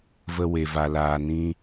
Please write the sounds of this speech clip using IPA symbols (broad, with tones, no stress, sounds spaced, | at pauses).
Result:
v ə˧ w e˨ v a˨ l aː˨ n ĩ˧